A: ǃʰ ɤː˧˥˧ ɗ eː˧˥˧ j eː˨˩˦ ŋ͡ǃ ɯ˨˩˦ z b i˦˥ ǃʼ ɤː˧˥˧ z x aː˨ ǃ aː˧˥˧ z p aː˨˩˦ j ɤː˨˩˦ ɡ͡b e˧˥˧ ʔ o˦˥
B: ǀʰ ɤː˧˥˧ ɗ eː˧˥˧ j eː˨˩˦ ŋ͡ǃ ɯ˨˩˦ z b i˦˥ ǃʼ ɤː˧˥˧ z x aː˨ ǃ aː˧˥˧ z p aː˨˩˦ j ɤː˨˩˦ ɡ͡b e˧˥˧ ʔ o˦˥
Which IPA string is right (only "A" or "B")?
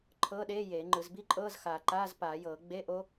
A